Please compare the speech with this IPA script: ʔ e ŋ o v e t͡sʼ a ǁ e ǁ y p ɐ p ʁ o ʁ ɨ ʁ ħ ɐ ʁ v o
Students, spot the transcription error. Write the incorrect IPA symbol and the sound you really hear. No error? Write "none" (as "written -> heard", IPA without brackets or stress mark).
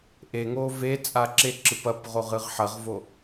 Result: y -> ɨ